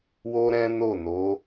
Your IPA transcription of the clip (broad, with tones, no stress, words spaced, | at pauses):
wo˦ɾɛ̃˦no˦˨ no˨˦